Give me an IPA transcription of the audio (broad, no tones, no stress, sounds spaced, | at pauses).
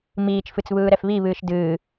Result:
m iː t͡ʃ f ɨ t͡s β ɯː ɾ ɛ f β i β ɨː ʃ d ɨː